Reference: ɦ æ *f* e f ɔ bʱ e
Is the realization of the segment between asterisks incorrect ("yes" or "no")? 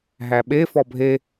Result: yes